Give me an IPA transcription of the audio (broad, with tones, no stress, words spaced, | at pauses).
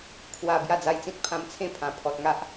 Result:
kʰwa˨˩ bja˥˧d͡za˧jt͡sĩ˦t̚ pʰã˧mt͡sʰẽ˦ pʰã˨˩ pʰɔ˨t̚ŋa˦ʔ